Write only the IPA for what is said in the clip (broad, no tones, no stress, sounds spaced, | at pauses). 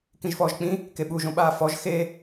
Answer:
k ĩ ʒ f ɔː ʒ k͡p ĩ | k e ɓ u ʒ õ ɓ aː f ɔ ʒ x e